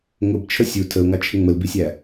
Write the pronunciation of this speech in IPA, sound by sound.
ŋʊbt͡ʃʰə sʲu tʰəʊ̯ŋɑt͡ʃʰɪ ŋ͡məlbisʲæ

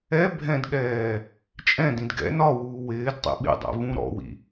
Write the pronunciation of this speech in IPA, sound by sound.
ɛ bʱɛ̃dɠɛː | t͡ʃʼɛ̃dĩd ɡɛ̰ nɒwuː wɪːdtˤḭ ɓḭdˤɛ̰ vũɾɔ̰wḭ

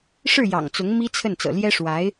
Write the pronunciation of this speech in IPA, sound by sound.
ʂɻ̩˥˩ jɑ̰˨˩ŋt͡sʊ˧˥ŋ mi˥t͡sʰə˥˩n t͡sɤ̰˨˩ljɛ˥ʂwa˧˥ɪ̯

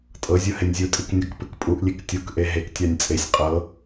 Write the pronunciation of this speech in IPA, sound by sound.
tʼɤzʲu henʲzʲutʼik nʲɔkpɨkpʼuʔlʲek tʲukʔe ɦektʲanʲ t͡sʼesʲ qʼɤ

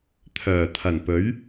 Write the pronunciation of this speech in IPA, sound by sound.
t̪ʰœː˨˩t̪ʰɐ˨˩npɵ˨˥ɥ

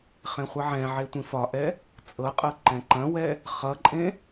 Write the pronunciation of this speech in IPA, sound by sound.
χẽχʷɐʕɛ̃ʕe tʷĩfɒʔɛ | t͡sʼɤqʼɤ ǃɛ̃ǃɐ̃wɛ | χʌǃʼẽ

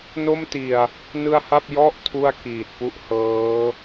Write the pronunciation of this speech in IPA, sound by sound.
no˥˩mti˨˩a̯ | nɯ˧a̯ha˥˩p̚ jɔ˥˩ʔ tʰu˥˩a̯kiː˨˩t̚pu˥˩ʔhɤː˦˥

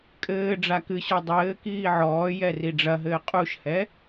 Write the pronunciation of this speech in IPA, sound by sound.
kʼɘː ɖ͡ʐakɨɕɔ dˤɘː kiːʕɔːjɛ riɖ͡ʐɐɦɘː qʼuʃhɛ

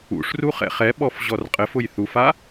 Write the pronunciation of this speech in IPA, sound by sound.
ṵʂru χɛ̰χɛ ɓɔfʑɔrqʼɘf ʊjθufa

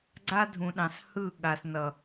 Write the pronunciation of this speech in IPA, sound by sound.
ɡ͡ǀa˦dʱũ˨ɗɑ̃˨s hɯ˦˨ɠa˨snʌ˨

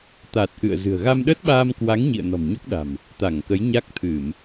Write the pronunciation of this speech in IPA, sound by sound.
t̪a˨˩t̚ʔɨ̰˧˨ə̯zɨ̤˨˩ə̯ ɣa˧mɗə˦˥t̚ɓaː˧mkwa˨˦ŋ ɲḭ˧˨ə̯nɔ̤˨˩mɲo˦˥k̚ɗa̤˨˩m | t̪a˧˩ŋkə˨˦jɲa˦˥k̚ t̪ʰɨ˧˩˨m

